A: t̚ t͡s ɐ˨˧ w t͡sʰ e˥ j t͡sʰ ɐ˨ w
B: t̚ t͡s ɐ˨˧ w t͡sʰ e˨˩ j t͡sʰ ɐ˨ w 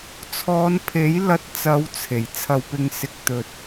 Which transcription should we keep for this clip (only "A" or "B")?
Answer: B